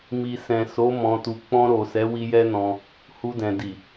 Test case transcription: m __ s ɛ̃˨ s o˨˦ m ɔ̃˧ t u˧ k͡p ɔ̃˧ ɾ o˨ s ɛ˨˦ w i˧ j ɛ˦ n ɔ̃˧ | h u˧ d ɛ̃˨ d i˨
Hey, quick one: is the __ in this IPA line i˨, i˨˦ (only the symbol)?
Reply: i˨